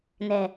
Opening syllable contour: low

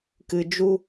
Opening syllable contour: high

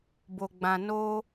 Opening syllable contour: low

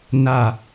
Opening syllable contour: low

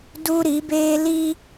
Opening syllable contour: high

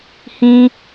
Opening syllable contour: high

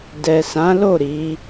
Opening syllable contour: low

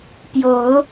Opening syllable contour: rising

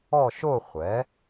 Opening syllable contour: falling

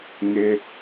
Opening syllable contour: high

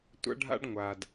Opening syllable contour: high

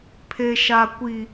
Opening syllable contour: low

